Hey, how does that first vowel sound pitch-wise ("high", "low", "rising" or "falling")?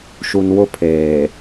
low